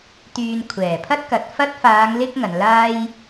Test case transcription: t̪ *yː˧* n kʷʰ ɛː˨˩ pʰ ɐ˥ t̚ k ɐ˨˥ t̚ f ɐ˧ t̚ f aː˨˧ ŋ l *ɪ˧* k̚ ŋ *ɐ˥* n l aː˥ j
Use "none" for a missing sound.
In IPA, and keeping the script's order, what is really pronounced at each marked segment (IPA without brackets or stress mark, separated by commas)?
yː˧, ɪ˧, ɐ˨˧